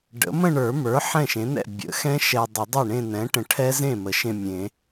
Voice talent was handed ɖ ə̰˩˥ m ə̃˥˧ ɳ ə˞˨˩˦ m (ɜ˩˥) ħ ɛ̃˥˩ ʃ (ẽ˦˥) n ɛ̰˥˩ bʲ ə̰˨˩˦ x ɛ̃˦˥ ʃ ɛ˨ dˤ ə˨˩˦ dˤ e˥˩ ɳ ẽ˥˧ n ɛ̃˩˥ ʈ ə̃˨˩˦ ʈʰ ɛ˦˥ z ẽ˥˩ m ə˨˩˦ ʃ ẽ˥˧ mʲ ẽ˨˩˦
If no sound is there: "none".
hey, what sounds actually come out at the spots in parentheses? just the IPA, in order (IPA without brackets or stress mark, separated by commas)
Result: ə˞˩˥, ẽ˩˥